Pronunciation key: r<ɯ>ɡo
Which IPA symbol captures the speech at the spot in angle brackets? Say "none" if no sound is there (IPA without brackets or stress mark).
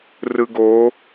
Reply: ɯ